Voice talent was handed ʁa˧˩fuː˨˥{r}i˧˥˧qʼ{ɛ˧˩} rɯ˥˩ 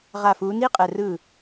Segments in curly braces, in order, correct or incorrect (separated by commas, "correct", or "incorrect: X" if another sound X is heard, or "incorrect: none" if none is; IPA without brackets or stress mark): incorrect: n, correct